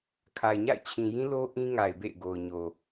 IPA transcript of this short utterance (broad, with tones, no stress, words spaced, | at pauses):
kʰa˨ɪ̯ɲa̰˦˨ɪ̯t͡ɕʰĩ˨jĩ˦ lo˦ ʔĩ˦ŋa˨ɪ̯bḛ˦˨ɪ̯ ɡo˨ʊ̯ɲo˨